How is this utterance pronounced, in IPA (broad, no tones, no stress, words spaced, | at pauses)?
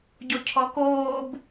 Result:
ɟocʰɔkoːb